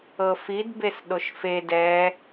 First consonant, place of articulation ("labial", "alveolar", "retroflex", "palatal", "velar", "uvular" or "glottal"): labial